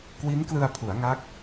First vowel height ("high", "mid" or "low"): high